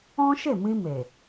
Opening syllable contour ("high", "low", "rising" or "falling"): high